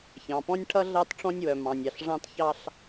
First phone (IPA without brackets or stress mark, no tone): ç